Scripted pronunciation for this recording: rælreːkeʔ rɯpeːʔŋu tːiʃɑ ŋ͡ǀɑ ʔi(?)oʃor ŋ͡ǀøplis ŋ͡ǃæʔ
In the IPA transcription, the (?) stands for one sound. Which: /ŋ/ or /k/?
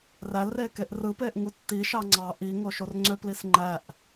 ŋ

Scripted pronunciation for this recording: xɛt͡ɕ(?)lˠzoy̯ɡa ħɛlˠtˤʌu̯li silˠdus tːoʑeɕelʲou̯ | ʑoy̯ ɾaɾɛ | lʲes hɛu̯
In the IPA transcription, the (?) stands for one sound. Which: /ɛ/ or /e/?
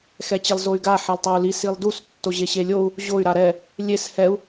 e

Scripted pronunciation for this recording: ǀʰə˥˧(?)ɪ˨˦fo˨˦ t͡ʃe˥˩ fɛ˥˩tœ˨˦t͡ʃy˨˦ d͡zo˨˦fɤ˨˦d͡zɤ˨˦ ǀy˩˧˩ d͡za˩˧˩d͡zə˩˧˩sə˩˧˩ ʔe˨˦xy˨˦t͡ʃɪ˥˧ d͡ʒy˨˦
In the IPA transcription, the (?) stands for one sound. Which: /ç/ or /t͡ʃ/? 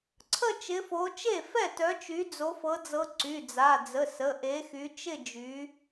t͡ʃ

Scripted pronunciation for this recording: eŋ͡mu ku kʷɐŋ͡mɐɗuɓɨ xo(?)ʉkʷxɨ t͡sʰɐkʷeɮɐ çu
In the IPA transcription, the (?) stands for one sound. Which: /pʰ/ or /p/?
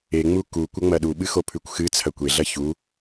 pʰ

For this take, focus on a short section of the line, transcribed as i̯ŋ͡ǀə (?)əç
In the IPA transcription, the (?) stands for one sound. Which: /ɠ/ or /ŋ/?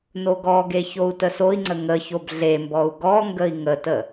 ŋ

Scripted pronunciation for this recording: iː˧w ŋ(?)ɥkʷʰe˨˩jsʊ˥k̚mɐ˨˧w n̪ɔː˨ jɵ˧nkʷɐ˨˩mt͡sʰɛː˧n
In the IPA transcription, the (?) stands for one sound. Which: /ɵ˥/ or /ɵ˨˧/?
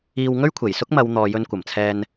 ɵ˥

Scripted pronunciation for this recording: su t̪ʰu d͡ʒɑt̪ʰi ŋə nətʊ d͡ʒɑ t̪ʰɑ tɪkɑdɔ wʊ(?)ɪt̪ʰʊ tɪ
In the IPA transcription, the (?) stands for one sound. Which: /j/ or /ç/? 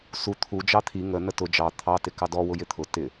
j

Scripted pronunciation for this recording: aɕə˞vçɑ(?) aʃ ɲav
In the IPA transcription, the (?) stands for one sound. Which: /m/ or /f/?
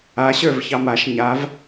m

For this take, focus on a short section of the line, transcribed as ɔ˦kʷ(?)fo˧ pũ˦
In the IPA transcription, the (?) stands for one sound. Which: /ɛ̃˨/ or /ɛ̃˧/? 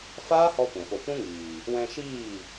ɛ̃˨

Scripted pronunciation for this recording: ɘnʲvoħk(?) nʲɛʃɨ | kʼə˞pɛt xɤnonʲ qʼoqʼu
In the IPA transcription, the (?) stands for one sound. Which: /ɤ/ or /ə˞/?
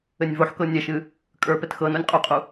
ɤ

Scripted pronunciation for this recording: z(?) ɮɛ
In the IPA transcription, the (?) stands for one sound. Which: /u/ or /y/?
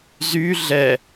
y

